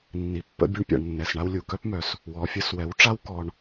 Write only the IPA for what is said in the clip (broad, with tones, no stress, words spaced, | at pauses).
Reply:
nːi˨pːə̰˧ bʲu˧ɳpʲa̰˨ɳnːɛ˨sɳa˧w lʲu˨ kœ˦pmœ˨s | wɔ˨fʲə˧s wɛ˨˦wʈ͡ʂa˦w kɔ˧ɳ